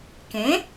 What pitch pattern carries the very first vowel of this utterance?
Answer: rising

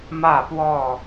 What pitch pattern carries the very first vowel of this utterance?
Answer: falling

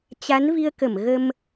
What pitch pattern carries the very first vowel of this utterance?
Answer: rising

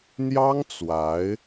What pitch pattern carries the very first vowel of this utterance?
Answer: high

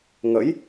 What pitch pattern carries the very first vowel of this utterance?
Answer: rising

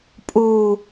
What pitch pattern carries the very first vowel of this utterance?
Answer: low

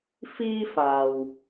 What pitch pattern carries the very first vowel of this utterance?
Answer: high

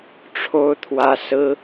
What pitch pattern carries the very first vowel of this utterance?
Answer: high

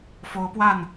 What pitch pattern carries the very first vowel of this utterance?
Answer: rising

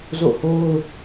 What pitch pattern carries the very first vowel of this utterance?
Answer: falling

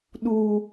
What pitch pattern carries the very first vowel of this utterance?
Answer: high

